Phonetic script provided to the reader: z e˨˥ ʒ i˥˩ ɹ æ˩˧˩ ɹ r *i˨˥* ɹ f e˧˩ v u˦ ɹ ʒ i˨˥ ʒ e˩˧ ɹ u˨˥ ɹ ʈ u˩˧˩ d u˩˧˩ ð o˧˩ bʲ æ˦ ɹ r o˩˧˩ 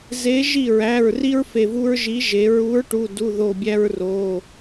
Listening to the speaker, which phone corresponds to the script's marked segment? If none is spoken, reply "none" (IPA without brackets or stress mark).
i˦